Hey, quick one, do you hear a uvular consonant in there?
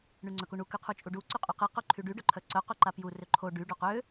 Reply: yes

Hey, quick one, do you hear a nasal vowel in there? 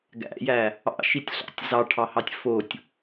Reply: no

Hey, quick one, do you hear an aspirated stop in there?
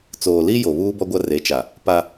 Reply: no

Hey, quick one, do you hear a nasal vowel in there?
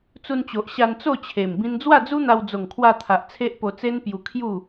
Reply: yes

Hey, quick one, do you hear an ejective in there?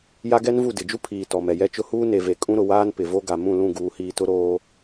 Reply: yes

